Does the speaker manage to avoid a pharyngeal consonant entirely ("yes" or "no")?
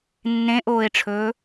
yes